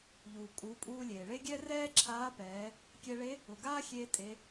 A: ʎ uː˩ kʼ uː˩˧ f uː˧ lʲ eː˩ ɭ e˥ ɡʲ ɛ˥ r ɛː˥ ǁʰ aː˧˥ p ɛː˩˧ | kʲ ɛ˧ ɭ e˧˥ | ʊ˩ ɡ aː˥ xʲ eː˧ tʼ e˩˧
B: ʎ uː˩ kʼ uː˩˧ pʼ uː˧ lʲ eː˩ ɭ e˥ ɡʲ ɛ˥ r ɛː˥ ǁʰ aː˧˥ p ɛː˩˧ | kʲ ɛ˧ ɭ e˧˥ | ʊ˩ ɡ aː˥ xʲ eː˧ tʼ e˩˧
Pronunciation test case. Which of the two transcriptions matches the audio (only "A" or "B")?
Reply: B